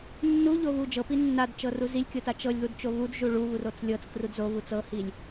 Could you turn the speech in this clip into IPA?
nː u ʎ o β u d͡ʒ ɤ p i nː a d t͡ʃ ɤ r u z i lʲ kʲ ɤ t a t͡ʃ ɤ lʲ ð u d t͡ʃ o β u d ʒ u ɭ u β u r o t͡s lʲ ɤ t͡s k r u d z o β u t͡s ɤ h i lʲ

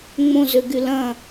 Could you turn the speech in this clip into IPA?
ŋ͡m õ z ø ɡ y l ɐ̃

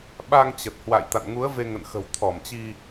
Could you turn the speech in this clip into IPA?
ɓ a˧ ŋ t͡ɕ ə˨˩ t̚ h w a̰˧˨ j t̪ a̰˧˨ n ŋ u˨˦ ə̯ v e˧ ŋ ə̰˧˨ n x ə̤˨˩ w t̪ʰ ɔ˧˩ m t͡ɕ i˧

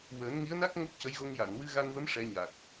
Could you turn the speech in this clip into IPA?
w əː˨˩˦ n ŋ i˧˥ ə̯ n a˦˥ k̚ ŋ o˦˥ p̚ c ə˧˥ j ɣ o˧ ŋ j a˨˩˨ n w ɨ˧ ɣ a˧ n v ə˧˥ m ʂ ɛ˧˥ ɲ a˨˩ k̚

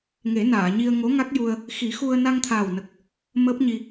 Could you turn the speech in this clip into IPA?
ŋ e˨˩˦ n aː˨˩˨ ɲ i˧ ə̯ ŋ o˧˥ ŋ a˦˥ k̚ j u˧ ə̯ | x i˨˩˦ x u˧ ə̯ n a˧ ŋ t̪ʰ aː˨˩ w n ə˨˩ k̚ | m əː˦˥ p̚ ɲ i˧

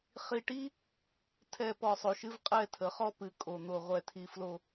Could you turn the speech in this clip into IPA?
χ i˨ ʈ i˦ | tʰ ɛ˨ p ɔ˨ sˤ o˨ ʃ ɨ˦ v qʼ ɛ˦˨ tʰ ə˨˦ χ ɔ˦ p ɨ˨˦ kʼ o˨ n̪ o˨ ʁʷ ɛ˨ tʰ i˨ f l o˨

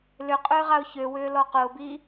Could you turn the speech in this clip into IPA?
l ʏ qʼ ʏː ʁ a ʊ̯ ç ø w ʏː l ɔ q ʊː b i

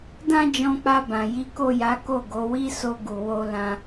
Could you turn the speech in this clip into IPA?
d ã˦ d͡ʒ ɔ̃˧ k͡p a˧ b ã˨ j i˨˦ k o˦˨ j a˨˦ k o˦˨ ɡ o˨˦ w i˦ s o˧ ɡ u˨ w o˧ l ã˧

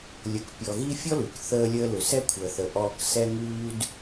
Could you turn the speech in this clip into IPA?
lʲ ə˨ k pʲ ɔ˨ ɣ i˥ fʲ ɔ˥ l ʉ˩ k θ əː˦ lʲ əː˦ l ʏ˨ s ɛ˥ kʷʰ əː˨ θ ə˨ ʔ ɔː˦ k s ɛ˦ ŋ ʉː˦ d

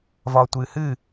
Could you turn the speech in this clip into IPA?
v ɒː tʷ ɨː h ɨː

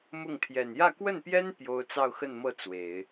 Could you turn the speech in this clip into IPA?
m ʊ˥˩ ŋ t̪ʰ j ɛ˨˩ n j ä˥˧ k w ə˥˩ n p j ɛ˥ n p j o˥ ʊ̯ t͡s ɑ˥˧ ʊ̯ x ə˥˧ n m ɤ˥˩ t͡s w e˨˩˦ ɪ̯

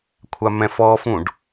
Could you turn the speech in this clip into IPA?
kʷʰ a m ɛ̃ f ɔ f ũ ɖ

